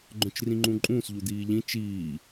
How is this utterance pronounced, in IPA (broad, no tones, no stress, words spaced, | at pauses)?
ɡ͡ǃœ̃t͡ʃrĩŋ͡ǃũǃʼũːs ʎud̪iːʎĩ t͡ʃiː